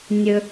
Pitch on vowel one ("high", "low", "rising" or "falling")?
low